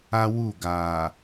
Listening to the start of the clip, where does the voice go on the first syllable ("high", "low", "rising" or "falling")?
high